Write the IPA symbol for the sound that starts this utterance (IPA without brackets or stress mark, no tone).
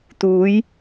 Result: t̪